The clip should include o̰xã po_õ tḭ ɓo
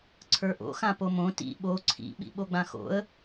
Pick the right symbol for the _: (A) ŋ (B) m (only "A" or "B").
B